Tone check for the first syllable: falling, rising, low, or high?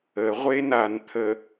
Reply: low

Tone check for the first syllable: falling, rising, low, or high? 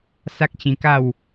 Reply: high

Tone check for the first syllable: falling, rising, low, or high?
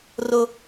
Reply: high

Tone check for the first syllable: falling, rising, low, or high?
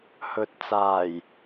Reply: low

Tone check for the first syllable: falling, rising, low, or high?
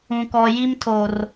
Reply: high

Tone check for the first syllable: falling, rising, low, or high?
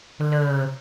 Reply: low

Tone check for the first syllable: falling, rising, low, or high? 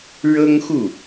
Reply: high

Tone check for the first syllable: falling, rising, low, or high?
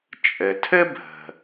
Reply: low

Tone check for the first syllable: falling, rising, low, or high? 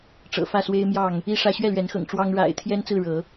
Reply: low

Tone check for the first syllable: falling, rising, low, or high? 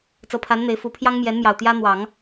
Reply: rising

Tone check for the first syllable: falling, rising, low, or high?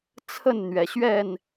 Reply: falling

